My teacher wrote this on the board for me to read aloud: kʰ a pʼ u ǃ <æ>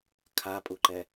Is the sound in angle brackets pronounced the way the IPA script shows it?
no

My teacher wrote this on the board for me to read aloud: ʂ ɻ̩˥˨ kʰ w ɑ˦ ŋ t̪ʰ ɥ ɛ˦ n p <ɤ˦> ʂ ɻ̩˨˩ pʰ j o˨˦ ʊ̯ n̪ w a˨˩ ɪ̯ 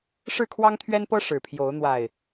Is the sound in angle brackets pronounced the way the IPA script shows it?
yes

